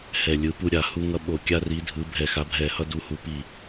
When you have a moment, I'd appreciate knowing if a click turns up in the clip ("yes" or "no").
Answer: no